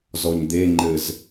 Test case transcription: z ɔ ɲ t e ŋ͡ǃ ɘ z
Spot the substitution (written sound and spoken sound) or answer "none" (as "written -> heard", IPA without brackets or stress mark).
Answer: t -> d̪